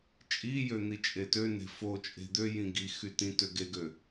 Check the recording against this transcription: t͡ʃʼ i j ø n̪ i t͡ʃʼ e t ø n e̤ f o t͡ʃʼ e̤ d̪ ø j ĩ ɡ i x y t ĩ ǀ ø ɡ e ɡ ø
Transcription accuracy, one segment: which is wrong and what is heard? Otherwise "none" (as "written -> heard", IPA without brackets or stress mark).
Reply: ǀ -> t